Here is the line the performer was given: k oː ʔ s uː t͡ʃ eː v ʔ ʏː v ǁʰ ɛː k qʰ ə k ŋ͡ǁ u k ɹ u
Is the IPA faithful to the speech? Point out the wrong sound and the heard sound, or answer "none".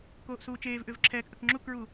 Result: qʰ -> ʔ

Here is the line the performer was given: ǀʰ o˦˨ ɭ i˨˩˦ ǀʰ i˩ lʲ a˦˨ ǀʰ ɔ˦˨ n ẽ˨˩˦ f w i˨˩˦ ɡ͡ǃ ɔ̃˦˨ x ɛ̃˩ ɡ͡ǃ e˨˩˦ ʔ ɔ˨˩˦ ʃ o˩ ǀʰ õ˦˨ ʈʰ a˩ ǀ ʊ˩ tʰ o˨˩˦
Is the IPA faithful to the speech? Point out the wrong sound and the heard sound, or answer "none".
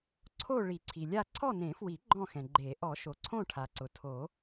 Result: none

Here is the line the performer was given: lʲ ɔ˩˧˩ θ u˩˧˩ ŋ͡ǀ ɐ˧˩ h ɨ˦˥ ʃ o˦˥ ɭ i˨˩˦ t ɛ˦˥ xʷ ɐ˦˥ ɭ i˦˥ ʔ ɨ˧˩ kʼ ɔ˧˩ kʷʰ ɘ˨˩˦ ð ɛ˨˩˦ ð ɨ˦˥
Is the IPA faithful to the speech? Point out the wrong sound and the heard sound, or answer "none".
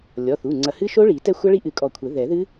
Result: none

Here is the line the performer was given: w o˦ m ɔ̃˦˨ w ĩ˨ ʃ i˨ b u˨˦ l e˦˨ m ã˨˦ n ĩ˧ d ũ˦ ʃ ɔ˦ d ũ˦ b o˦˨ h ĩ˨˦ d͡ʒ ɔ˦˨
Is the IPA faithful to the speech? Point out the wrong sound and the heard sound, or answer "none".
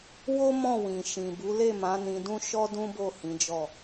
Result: i˨ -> ĩ˨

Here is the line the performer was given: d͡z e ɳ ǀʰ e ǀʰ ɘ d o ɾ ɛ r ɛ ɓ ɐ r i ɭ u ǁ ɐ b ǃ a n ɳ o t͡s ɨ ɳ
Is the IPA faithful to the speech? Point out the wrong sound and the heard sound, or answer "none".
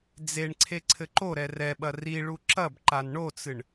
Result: d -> ǃ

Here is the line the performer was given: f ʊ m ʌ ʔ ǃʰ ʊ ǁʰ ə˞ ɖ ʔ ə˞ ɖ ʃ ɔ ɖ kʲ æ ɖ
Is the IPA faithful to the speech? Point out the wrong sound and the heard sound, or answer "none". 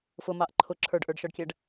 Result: ʌ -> ɑ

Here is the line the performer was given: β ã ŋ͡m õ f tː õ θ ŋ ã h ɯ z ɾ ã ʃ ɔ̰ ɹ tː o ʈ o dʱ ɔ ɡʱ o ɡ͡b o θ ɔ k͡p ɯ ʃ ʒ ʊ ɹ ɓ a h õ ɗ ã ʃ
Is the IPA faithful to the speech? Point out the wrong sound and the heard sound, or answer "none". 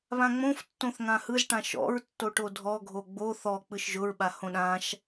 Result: ɾ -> ʈ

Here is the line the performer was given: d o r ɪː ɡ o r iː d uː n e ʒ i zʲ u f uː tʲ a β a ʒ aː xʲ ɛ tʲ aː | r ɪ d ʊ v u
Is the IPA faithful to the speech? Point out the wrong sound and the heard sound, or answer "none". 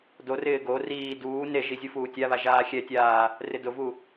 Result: none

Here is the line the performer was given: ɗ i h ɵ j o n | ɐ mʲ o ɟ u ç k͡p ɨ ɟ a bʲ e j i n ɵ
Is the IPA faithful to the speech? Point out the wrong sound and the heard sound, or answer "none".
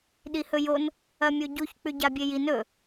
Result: ɨ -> ʉ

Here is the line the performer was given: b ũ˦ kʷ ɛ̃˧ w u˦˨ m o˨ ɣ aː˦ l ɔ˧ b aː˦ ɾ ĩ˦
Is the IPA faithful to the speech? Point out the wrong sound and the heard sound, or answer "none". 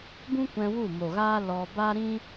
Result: none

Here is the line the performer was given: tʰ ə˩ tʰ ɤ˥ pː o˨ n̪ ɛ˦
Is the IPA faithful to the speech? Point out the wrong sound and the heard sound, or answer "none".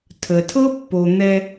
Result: none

